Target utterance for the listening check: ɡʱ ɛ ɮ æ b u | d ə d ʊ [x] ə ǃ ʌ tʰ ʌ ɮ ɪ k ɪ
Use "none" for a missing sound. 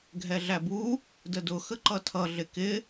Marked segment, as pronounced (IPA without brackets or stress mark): x